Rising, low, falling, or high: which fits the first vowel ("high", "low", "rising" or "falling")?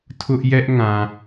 high